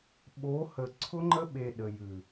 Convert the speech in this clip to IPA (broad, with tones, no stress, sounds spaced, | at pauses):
ɓ o˨˦ h ə˨ ǀʰ ʊ˧ ŋ͡ǃ ə˧ ɓ e˨ ɗ ə˨ j ʉ˨